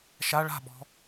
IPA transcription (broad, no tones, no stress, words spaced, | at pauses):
ʃa ɭa̤ɓɔ̤